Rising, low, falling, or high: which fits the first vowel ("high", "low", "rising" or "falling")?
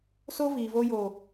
high